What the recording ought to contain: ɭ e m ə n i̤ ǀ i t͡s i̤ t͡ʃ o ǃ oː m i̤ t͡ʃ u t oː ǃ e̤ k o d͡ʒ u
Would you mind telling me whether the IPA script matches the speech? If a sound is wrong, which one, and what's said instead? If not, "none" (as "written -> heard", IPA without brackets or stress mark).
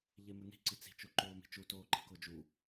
ɭ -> ʎ